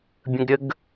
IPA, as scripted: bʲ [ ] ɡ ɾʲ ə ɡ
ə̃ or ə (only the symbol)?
ə̃